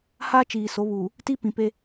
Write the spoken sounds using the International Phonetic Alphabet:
h a˦ t͡ʃ iː˨ s o˨˦ β uː˨ | t i˦ p ĩ˨ p e˦

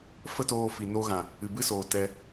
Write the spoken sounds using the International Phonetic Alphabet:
f ə˦ t oː˧ f i˨ n o˧ ɣ ã˨ | ɨ˨ b ɨ˦ s oː˨ t ɛ˧

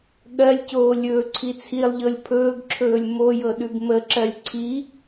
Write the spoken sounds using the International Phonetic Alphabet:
ɠ ɜ lʲ c oː lʲ ɵː ǀʰ i t͡sʰ i lˠ ʎ ɤ lʲ pʰ ɵː ɡ ǁʰ ɵː lʲ m o j ɤ ɗ ʉ ɡ m ə ǁ ɜ lʲ ǀʰ i

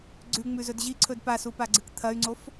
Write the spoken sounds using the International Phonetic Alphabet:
ɡ͡ǀ ʉ ŋ͡m ʉ z ɵ d ʑ i ǀʰ ɵ d p a s u p a ɡ͡ǀ ɨ k t̪ʰ ɐ y̯ ŋ͡ǀ o f

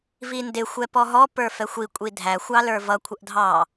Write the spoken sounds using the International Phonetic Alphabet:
v i n d ɪ xʷ ɛ p ɔ ɦ ɔ p ə˞ f ɛ xʷ i kʷʼ i dʱ æ xʷ ɑ l ə˞ v ʌ kʷʰ ə ʔ dʱ ɑ

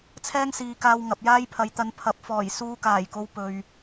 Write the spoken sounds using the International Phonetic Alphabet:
t͡sʰ ɛː˥ ŋ s iː˨˧ k aː˧ w ŋ ɐ˨ p̚ j aː˥ j pʰ ɐ˨˥ j t̪ ɐ˨ n pʰ ɐ˨ p̚ f ɔː˨˩ j s uː˧ k aː˨˩ j k o˨˧ w p ɵ˨ ɥ

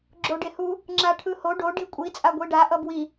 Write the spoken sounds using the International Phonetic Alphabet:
ɡ͡ǁ o ɖ e h u | ŋ͡ǁ a ʈʰ ɯ h o ɖ o ɖ i kʷʼ i t͡sʼ a ɡʷ i ɖ a ʔ ʌ b w i

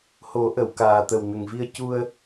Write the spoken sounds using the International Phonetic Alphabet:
h o˨˩˦ ʔ ə˨˩˨ w k aː˨˩ t̪ ə˨˩ w n ə˨˩ ŋ v i˧ ə̯ c u˧ ə̯

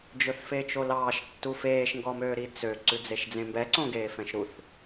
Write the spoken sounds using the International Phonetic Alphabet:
d͡ʒ ɵ θ f e t͡ʃ o l ɑː ʃ tː u f eː ʃ ŋ ɡ ɔ m øː ɾ i t͡s ø ǀ ʉ d͡z e ʃ d͡z ẽ m b ɛ ǀ õ ɡ eː f ɛ̃ ʃ ɾ u θ

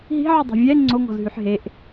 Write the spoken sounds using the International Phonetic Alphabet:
ɦ i̤ ʕ y dˤ i̤ vʲ ɛ ŋ͡ǀ o ŋ ɔ̤ z ɦ y ħ ɦ e ʔ

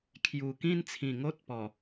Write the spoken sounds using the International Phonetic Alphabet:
kʰ j u˨˩ k ĩ˥˧ n t͡sʰ ĩ˨˩ ŋ o˦ t̚ p ɔ˨˩

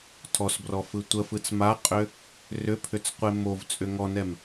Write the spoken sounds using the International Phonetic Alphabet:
tʰ ɔ s b r ɔ f ɯ tʷ ə f ɯ t͡s m a qʼ ʏ | r ʏ pʰ ʏ t͡s qʷ e m o v t͡sʼ ʏ ŋ ɔ n ɛ m

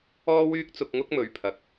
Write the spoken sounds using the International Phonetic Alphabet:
ɔː˥ w yː˥ k̚ t͡s ʊ˧ k̚ ŋ ʊ˥ k̚ m ɵ˨ ɥ pʰ ɐ˨ k̚

